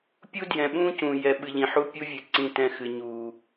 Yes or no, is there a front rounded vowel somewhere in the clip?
no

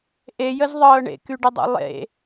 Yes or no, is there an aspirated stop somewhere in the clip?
no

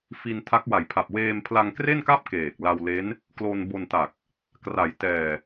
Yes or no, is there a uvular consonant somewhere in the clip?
no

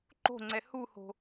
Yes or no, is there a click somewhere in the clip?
yes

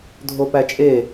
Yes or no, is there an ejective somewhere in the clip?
yes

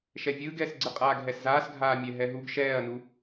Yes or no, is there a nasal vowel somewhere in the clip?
no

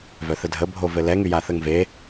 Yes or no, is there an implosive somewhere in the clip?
no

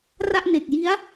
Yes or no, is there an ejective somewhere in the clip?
no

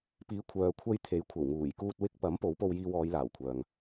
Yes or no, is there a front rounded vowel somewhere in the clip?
yes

